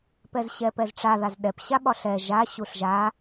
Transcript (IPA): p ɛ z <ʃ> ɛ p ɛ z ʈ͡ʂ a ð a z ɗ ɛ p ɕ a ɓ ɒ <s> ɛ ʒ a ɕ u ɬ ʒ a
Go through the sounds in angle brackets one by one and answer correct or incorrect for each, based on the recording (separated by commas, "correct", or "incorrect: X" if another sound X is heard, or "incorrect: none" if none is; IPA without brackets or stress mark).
incorrect: ɕ, incorrect: ɬ